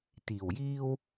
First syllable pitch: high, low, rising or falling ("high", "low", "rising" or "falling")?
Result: low